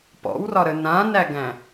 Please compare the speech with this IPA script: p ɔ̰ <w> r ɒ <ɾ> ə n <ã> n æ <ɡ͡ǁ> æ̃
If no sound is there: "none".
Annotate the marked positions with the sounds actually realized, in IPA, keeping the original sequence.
w, ɾ, ã, ɡ

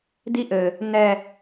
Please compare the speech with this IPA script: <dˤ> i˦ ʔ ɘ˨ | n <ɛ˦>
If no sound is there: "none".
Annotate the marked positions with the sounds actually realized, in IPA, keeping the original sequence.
d, ɛ˨

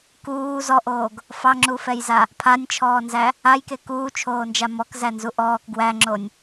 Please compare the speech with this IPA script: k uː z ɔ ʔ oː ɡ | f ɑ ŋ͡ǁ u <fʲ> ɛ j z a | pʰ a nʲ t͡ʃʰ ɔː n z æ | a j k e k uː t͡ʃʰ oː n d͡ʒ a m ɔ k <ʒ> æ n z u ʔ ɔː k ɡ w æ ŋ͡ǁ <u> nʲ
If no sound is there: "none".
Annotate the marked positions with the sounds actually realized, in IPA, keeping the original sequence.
f, z, o

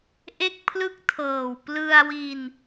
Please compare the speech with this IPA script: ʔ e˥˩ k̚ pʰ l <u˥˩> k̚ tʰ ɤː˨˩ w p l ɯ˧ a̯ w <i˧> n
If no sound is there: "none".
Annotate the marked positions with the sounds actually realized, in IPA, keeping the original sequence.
ɯ˥˩, i˧

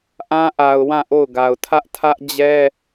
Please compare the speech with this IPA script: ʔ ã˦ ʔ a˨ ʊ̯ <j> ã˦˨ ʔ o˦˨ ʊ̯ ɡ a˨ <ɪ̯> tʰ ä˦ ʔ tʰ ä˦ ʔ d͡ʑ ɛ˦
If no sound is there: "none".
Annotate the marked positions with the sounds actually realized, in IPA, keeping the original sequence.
w, ʊ̯

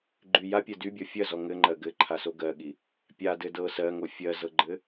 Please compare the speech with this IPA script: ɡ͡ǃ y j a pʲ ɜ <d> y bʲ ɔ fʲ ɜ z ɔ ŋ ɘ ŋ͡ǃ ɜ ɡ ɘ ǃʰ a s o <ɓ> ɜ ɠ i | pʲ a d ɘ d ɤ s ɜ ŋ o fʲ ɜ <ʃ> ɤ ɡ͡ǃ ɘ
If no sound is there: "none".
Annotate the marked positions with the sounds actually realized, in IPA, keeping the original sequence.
d, ɡ, z

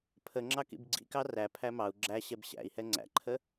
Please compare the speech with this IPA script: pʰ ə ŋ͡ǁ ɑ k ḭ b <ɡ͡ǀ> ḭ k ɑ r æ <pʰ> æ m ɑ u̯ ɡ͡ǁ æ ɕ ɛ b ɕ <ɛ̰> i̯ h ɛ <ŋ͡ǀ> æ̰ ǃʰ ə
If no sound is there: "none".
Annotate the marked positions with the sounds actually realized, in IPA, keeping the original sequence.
ɡ͡ǀ, pʰ, æ̰, ŋ͡ǀ

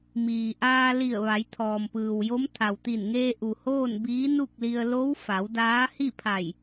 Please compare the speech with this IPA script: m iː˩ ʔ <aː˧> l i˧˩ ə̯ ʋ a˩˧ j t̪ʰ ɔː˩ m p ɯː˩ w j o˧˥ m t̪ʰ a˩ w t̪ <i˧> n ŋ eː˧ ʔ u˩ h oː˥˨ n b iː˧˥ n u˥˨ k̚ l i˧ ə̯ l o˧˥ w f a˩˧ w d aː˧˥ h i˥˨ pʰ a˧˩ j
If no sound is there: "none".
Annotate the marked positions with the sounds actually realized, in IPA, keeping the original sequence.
aː˧, i˧˩

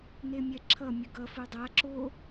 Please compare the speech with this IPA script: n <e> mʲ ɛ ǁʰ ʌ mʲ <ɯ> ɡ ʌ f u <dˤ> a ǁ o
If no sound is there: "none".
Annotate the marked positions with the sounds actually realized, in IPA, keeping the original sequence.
e, ɯ, dˤ

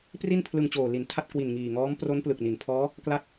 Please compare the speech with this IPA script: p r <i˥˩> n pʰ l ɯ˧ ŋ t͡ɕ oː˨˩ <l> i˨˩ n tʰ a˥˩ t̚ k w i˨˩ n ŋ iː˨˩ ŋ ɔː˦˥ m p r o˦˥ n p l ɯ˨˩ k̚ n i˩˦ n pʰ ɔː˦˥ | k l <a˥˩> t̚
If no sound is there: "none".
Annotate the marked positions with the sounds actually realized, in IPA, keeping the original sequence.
i˥˩, l, a˥˩

